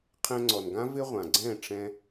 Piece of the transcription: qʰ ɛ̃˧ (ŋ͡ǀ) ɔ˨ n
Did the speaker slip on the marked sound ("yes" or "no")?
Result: no